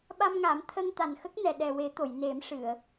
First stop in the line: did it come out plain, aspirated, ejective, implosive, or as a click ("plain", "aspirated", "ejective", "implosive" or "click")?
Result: implosive